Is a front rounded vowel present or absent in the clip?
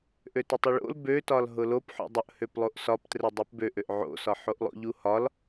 present